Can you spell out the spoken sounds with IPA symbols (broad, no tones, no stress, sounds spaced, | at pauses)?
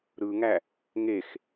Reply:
ɾ ɯ ŋ æ | ŋ e x